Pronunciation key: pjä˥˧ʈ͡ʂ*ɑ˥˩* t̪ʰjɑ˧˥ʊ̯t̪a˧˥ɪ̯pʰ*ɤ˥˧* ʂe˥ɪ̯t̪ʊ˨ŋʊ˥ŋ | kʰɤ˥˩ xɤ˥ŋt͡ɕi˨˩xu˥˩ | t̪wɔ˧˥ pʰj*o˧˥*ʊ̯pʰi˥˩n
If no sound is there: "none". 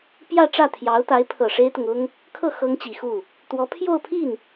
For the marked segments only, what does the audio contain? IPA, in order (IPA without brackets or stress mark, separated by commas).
ä˥˩, ɤ˨˩, o˥˧